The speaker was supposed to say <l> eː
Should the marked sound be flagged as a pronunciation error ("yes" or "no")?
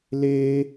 no